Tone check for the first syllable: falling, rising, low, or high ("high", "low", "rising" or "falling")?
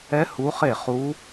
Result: rising